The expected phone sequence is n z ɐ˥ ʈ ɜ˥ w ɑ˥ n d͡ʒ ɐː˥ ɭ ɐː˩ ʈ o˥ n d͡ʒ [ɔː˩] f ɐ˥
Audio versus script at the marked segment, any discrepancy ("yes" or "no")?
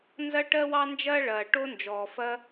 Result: no